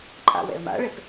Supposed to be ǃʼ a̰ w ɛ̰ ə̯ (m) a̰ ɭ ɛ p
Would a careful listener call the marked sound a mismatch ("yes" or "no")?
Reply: no